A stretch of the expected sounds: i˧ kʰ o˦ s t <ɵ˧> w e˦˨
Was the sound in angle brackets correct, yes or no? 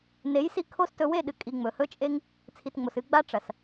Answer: yes